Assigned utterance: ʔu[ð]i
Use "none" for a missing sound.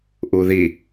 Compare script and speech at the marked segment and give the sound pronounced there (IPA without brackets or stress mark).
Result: ð